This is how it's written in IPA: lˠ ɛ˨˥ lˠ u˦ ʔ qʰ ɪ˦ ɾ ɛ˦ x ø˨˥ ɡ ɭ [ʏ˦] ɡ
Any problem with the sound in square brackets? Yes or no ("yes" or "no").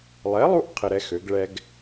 yes